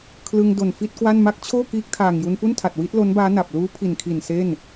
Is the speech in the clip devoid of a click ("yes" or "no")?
yes